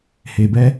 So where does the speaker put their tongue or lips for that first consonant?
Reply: throat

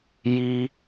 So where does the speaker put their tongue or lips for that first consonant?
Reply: palate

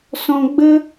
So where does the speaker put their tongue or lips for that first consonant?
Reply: tongue tip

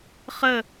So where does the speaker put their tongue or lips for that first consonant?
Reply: uvula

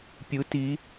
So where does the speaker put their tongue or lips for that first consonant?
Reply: lips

